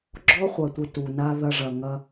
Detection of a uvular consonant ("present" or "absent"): present